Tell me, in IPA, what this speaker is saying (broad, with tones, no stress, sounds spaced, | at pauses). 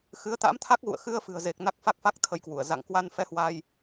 x ɨ˨˦ ə̯ t̪ a̰˧˥ m t̪ʰ a˦˥ k̚ ɣ ṵ˧˨ ə̯ x ɨ˧ ə̯ f ɨ̤˨˩ ə̯ z e˨˩ k̚ n a˦˥ k̚ f a˦˥ k̚ f a˦˥ k̚ t̪ʰ ə˧ j k w u˧˩ ə̯ z a̰˧˨ ŋ k w a˧ n f ɛ˧ h w a˧ j